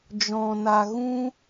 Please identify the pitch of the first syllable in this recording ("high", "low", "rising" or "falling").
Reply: low